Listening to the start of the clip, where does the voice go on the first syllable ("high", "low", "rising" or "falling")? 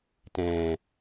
low